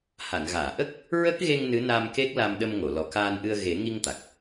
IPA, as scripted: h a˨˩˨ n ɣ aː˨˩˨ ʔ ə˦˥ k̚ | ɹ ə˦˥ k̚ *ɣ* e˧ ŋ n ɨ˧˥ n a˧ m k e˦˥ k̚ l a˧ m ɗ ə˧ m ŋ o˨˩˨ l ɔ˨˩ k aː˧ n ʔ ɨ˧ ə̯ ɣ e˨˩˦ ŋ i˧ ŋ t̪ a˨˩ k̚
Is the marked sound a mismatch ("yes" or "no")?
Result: no